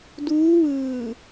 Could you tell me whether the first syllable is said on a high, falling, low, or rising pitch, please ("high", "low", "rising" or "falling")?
rising